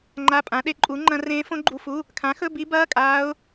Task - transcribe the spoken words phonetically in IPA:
ŋ͡ǃ a˧˥˧ pʼ ã˨˥ ɗ e˨˥ ǃʼ u˨˥ ŋ͡ǃ ɐ̃˦˥ r ẽː˦˥ f õ˦˥ ɡ͡ǃ u˧˥˧ f u˧˥˧ | kʰ ã˨˥ x ɵ˧˥˧ b i˦˥ b ɐː˧˥˧ kʼ aː˦˥ ʊ̯

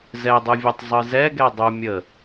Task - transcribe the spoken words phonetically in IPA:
z ɛ dˤ ɯ vʲ ɛ tˤ zˤ ɯ z ɛ ɡ ɛ dˤ u mʲ ə

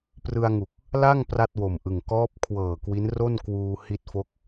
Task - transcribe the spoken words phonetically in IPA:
p r ɯ˧ a̯ ŋ u˨˩ k̚ | l a˥˩ ŋ p r a˥˩ t̚ w o˨˩ m ʔ ɯ˨˩ ŋ k ɔː˦˥ p̚ kʰ w ɤː˨˩ k w i˦˥ n r o˥˩ n k w uː˧ h i˦˥ t̚ f o˦˥ k̚

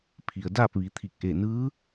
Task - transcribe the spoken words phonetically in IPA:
pʰ i˩ ə̯ d aː˥˨ p̚ ʋ i˩˧ t̪ʰ i˧˩ k̚ ʔ e˧˩ n ɯː˧˥

